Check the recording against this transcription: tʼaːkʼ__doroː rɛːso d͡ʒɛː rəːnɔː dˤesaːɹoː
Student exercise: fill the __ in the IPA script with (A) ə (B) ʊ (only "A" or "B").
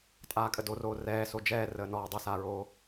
A